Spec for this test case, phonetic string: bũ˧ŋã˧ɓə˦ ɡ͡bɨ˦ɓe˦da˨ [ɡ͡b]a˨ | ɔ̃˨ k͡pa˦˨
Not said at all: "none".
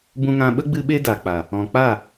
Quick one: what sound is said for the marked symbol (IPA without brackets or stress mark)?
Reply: k͡p